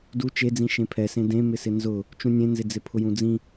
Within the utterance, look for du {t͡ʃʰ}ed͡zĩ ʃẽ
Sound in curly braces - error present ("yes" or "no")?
yes